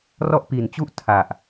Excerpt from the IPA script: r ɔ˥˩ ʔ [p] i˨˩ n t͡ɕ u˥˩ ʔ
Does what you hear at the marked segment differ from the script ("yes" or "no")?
no